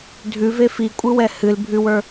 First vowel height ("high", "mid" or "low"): high